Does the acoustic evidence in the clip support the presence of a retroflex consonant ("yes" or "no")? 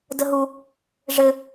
yes